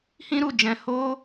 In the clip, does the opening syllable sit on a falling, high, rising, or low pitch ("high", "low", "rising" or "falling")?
high